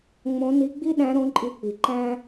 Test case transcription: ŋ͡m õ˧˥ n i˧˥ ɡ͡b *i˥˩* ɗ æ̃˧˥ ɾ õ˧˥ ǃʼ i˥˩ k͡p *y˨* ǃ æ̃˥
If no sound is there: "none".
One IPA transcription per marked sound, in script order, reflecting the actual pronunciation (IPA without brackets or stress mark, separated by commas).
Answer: i˥, i˨